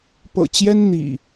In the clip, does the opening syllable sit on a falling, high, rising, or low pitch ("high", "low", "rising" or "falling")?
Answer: low